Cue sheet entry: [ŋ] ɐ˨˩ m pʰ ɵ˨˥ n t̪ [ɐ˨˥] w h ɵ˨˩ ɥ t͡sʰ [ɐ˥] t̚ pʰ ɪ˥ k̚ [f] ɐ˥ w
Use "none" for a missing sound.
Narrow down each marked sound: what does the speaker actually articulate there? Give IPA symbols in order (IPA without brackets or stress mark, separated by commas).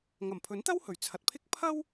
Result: ŋ, ɐ˥, ɐ˨, pʰ